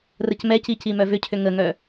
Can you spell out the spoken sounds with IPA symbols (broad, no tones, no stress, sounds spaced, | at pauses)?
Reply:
r ə c m ɛ c i c i m œ v ʏ cʰ ʏ ŋ ə ŋ œ